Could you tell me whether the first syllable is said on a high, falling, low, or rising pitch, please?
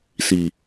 low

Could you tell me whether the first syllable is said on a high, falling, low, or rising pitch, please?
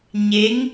rising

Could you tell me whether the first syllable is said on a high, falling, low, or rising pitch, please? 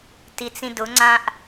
low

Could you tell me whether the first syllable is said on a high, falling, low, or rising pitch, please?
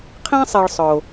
high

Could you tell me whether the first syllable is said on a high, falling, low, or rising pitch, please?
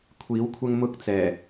rising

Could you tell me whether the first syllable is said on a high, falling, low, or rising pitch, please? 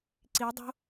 rising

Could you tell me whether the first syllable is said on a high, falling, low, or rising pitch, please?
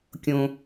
high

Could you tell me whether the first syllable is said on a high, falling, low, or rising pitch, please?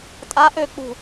rising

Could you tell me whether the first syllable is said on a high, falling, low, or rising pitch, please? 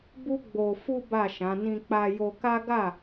high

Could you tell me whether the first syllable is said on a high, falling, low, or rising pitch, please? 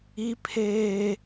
high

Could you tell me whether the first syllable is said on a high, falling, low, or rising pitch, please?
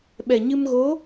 low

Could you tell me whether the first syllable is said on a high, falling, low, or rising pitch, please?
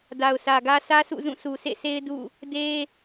low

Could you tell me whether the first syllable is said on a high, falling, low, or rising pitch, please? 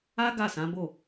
high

